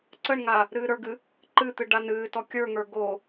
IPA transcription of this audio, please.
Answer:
ǀ ə ɳ ŋ a | ɾ ɨː ɾ ə˞ ɡ ɨ | ǃ ɨ t̪ ɨ ɖ a n ɨː t ɔ kʲ ə˞ ŋ ə˞ ɡ o

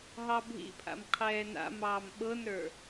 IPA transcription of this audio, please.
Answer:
ɦ ɑ bʱ ḭ pʰ a̰ m qʰ ɛː n a̰ m ɑː m ɓ ɤ n ɾ ə˞

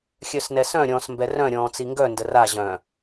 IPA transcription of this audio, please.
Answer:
xʲ œ s n ɛ s œ̃ ɾʲ ɔ̃ː s m b ɛ r œ̃ ɾʲ ɔ̃ː t͡s i ŋ ɡ œ n d ə r a ʑ œ̃

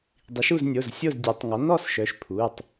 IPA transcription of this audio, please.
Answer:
dˤ i˩˥ ʃ u˥˨ z nʲ o˩˧˩ z sʲ o˥˨ z dʲ ɛ˩˥ tˤ ŋ ɔ˩˥ n ɔ˥˨ s ʃ œ˩˥ ʃ pʰ u˩˧˩ tˤ

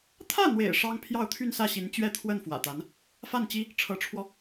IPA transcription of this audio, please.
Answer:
t̪ʰ ä˥˩ n̪ w ḛ˨˩ ɪ̯ ʂ ɑ˥ ŋ pʰ j ɑ˥˧ ʊ̯ t̪ʰ y˥˧ n s ä˥˩ ɕ i˧˥ n t͡ɕ ɥ ɛ˥˧ t̪ʰ w ə˥˩ n f w ä̰˨˩ t̪ a˧˥ n | f a˥˩ n t͡ɕ i˥ | ʈ͡ʂʰ ɤ˧˥ ʈ͡ʂʰ w ɔ˧

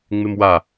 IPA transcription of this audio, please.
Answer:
ŋ͡m ɪ m w a

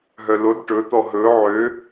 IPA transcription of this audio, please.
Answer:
ɦ œ l o d ʈ ɵ t̪ ɔ ɦ ɵ ʕ ø

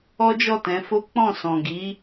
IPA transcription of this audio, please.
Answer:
ɔ˦ d͡ʒ ɔ˦˨ t ɛ̃˨˦ f o˦ k͡p ɔ̃˦˨ s ɔ̃˨ ɡ i˨˦

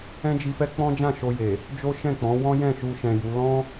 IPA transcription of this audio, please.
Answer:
ɛ̃˦ d͡ʒ i˧ f ɛ˦ k͡p ɔ̃˦ d͡ʒ ã˦˨ ʃ o˧ j e˨ | d͡ʒ o˦ ʃ ɛ̃˦˨ k͡p ɔ̃˨˦ w ɔ̃˦ j ɛ̃˦˨ ʃ u˧ ʃ ɛ̃˨ j u˨˦ l ɔ̃˦

